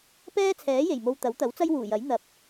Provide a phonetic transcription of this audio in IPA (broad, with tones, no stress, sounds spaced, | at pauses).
p ɛː˥ t͡sʰ ɛː˨˥ j e˨˩ j m o˧ w t̪ ɐ˨˥ w t̪ ɐ˨˥ w t͡s ɐ˥ j w uː˨˩ j ɐ˨˥ j n̪ ɐ˨˥ p̚